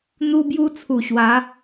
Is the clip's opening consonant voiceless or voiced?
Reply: voiced